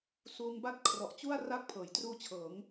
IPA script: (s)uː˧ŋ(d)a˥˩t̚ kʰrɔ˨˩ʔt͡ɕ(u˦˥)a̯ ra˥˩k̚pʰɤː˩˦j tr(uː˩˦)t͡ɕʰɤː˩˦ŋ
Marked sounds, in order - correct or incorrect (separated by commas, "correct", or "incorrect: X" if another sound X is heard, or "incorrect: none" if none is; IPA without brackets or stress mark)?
correct, incorrect: b, incorrect: u˥˩, incorrect: uː˦˥